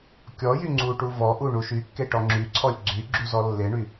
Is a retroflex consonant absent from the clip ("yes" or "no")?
no